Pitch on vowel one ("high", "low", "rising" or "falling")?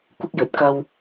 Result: high